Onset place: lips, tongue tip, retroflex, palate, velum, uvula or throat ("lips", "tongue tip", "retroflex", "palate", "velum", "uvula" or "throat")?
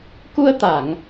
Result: velum